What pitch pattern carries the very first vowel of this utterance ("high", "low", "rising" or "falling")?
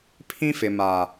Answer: high